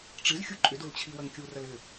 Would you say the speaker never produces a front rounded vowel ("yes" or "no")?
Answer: no